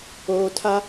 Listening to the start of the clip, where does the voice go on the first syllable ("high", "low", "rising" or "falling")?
low